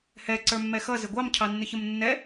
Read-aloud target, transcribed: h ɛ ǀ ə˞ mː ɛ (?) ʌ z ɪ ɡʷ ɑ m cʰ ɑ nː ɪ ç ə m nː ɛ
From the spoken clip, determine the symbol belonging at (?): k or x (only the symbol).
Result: x